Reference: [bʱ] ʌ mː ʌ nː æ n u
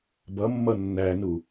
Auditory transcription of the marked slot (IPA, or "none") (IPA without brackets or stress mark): b